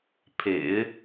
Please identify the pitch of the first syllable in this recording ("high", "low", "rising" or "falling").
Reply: low